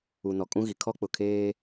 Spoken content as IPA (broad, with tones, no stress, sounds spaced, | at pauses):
u˨ n ɔ˨ kʼ ũ˦ ɣ i˨ kʰ ɔ˦ k͡p ʊ˨ kʰ eː˦